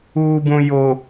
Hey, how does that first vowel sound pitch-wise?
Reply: low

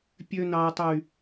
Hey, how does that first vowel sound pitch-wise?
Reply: high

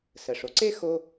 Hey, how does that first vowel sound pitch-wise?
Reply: low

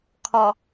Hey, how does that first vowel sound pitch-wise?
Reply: low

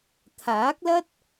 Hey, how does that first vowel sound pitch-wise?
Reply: rising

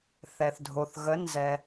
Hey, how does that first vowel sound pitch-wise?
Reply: low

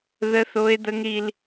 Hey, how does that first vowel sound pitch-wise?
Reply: high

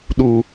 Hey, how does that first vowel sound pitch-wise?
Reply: low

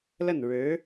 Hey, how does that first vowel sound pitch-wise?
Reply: falling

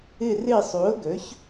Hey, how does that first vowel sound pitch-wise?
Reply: falling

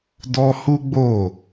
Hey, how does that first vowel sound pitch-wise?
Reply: high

